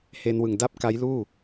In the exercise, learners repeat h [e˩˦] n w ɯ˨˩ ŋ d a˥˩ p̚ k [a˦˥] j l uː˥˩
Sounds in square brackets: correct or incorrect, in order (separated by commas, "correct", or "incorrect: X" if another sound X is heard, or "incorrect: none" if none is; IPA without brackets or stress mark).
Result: incorrect: e˧, correct